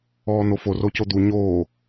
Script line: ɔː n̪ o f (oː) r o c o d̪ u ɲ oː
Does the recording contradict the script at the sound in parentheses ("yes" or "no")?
yes